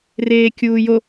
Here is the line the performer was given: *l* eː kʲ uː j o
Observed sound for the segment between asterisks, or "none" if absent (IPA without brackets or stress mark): r